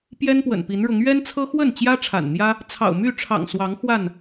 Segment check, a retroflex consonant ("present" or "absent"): present